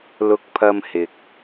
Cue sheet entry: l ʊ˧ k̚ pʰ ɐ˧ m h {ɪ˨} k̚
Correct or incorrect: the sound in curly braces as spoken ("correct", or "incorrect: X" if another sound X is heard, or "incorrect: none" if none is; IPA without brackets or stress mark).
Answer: correct